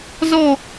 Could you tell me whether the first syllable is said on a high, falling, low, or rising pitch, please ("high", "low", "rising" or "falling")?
falling